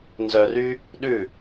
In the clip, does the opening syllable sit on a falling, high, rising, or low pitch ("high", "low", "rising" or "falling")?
low